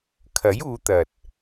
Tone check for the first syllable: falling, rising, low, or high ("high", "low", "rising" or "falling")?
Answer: rising